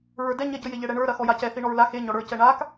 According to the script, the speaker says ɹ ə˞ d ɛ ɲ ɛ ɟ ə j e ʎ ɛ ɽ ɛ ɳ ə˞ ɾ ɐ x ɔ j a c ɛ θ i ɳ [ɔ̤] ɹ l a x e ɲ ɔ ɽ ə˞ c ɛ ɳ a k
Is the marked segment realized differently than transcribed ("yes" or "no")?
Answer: yes